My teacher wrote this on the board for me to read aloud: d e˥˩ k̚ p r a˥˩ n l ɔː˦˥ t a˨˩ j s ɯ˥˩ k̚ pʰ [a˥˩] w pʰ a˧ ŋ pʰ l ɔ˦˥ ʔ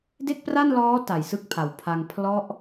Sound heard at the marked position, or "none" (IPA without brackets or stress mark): a˩˦